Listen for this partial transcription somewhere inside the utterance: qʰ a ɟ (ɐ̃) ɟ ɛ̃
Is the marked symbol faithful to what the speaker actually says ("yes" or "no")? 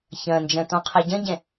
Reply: yes